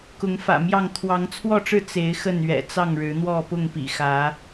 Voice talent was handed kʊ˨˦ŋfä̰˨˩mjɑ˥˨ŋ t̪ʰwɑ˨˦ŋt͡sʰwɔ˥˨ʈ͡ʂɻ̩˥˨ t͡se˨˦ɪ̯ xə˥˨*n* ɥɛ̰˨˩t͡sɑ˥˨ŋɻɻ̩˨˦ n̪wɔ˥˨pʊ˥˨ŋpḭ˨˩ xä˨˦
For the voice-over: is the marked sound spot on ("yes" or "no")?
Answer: yes